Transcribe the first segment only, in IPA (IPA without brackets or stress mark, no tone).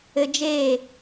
ɘ